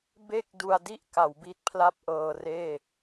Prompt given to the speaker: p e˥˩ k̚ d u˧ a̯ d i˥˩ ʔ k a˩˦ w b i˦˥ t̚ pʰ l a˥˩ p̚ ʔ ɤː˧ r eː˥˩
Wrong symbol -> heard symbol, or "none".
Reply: p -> b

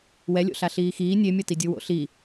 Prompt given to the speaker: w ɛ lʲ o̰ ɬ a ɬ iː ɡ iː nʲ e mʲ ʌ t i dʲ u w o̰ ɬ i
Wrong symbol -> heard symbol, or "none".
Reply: ɡ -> x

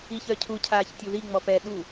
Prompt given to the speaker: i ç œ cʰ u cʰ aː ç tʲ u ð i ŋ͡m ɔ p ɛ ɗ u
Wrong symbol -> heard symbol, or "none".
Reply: none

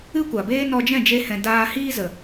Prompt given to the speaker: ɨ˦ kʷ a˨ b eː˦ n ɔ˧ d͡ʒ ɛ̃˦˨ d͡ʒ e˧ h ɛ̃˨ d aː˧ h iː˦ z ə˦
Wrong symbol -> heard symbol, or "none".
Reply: ə˦ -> ə˨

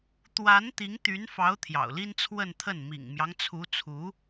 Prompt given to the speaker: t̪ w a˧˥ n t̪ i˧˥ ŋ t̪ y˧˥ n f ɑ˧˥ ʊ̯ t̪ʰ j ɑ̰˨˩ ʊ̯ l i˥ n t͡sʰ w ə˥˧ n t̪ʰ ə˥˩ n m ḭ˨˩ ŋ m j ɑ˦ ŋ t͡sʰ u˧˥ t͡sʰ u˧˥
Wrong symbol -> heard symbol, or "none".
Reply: none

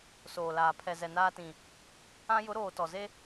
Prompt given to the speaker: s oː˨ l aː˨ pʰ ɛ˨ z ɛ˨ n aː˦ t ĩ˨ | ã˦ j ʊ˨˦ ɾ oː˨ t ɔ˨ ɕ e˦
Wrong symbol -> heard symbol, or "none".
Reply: ɕ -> z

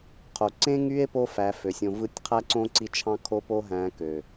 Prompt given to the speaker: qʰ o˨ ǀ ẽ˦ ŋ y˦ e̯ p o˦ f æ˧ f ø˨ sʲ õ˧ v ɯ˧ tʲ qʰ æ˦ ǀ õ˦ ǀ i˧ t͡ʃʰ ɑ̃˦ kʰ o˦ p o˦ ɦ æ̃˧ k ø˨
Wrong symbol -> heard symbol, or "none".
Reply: none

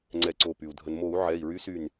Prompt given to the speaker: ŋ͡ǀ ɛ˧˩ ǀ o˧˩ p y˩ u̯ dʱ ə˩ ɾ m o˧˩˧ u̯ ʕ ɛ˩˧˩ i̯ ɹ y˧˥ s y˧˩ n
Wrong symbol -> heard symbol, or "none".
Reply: ɾ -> n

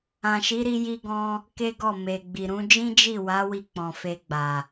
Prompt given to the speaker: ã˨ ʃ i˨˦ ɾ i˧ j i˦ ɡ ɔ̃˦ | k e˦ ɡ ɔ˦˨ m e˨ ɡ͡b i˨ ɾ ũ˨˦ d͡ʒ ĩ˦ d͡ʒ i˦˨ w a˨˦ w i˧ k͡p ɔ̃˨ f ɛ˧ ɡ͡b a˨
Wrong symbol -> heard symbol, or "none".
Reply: ɛ˧ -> e˧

